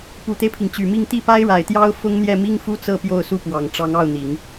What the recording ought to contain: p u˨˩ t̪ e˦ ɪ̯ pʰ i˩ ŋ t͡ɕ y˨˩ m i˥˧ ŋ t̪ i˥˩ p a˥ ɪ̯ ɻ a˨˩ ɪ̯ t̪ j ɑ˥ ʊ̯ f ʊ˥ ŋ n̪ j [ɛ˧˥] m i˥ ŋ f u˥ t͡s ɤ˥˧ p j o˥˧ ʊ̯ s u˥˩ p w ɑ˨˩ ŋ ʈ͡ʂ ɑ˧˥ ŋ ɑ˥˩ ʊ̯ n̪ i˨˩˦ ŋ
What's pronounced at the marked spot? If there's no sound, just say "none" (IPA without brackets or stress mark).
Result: ɛ˥˩